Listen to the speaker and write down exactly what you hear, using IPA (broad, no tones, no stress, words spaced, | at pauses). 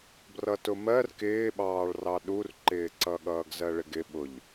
brʌtʊmɜr kɪːɓɑːɭrɑ ɗurǃɪːǀʌ ɠʌːɡzɜɭɪɡɪ ɓʊʎ